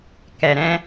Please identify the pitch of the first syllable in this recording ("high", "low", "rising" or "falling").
low